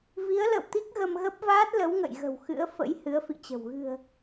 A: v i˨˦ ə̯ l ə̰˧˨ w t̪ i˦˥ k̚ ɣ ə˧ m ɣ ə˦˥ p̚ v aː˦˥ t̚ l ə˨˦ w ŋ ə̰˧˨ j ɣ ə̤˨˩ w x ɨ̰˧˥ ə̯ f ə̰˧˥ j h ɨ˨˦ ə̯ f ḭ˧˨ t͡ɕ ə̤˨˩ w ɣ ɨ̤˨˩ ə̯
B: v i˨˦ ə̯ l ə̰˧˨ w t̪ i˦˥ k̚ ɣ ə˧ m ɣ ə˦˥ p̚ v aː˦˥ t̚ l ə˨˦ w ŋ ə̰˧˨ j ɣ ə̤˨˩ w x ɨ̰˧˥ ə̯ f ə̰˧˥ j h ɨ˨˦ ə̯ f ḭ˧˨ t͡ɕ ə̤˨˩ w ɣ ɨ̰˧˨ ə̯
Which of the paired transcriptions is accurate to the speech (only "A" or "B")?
A